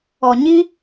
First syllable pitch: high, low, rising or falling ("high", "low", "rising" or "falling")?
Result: low